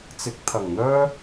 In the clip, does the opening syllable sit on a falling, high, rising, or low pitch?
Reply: rising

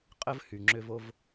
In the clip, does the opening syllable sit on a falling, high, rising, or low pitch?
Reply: high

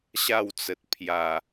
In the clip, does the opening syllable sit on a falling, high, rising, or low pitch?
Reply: falling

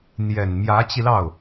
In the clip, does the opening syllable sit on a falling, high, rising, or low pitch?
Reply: low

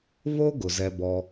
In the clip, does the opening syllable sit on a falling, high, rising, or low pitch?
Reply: high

